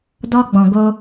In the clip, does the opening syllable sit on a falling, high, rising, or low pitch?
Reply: high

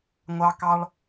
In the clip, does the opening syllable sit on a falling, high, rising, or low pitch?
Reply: high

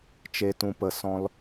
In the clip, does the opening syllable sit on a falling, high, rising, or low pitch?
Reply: low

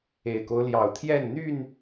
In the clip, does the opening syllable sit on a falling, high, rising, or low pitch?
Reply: low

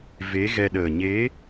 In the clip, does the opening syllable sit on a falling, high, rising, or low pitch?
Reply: rising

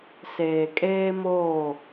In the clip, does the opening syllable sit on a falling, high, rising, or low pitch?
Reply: low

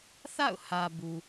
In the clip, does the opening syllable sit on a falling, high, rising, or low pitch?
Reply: falling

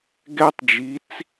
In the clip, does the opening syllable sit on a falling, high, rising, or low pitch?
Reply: high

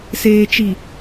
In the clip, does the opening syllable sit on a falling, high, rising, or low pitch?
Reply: low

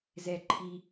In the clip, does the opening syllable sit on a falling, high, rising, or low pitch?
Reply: low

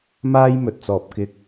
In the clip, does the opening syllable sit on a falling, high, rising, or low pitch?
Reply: high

